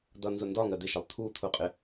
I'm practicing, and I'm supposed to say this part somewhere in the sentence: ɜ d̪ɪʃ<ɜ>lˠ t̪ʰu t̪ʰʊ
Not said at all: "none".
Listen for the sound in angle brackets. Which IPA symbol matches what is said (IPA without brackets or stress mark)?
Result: ɜ